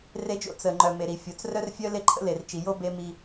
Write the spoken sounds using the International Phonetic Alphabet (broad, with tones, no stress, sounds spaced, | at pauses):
r e˦ d͡ʒ o̰˦ t͡s ə˨ ŋ͡ǃ œ˨ m e˨ ɾ i˨ fʲ o˨ t͡s r œ˦ r fʲ œ˦ l e˦ ǃʰ ə̰˦ l e˨ r t͡ʃ i˨ j o˦ b e˦ m i˦